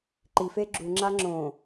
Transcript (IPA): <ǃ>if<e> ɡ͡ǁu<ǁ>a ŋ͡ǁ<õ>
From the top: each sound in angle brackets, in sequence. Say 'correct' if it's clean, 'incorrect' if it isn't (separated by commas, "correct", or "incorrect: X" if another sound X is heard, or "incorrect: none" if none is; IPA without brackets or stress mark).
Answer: correct, correct, incorrect: ŋ͡ǁ, correct